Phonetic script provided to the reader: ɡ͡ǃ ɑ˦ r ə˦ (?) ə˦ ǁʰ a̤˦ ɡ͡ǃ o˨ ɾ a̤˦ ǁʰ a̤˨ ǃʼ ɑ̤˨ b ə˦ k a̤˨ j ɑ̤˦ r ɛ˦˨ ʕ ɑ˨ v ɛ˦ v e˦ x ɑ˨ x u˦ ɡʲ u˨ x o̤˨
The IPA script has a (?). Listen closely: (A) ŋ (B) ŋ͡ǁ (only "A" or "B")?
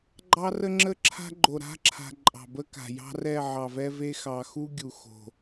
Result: B